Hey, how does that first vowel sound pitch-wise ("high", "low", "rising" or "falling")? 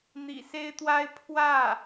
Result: low